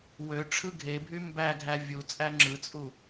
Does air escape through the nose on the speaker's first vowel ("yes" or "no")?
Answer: no